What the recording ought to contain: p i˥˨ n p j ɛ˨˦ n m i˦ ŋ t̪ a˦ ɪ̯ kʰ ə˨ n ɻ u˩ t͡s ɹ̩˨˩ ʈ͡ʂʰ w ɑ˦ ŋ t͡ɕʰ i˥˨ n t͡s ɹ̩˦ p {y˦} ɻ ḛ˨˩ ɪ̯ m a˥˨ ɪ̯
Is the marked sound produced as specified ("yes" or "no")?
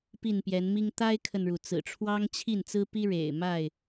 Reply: no